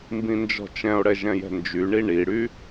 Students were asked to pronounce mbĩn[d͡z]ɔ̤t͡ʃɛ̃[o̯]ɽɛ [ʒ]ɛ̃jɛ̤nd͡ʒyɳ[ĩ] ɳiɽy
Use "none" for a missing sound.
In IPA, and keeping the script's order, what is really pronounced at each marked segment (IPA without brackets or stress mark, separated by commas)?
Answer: d͡ʒ, o̯, ʒ, i